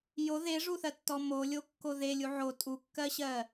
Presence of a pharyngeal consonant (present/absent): present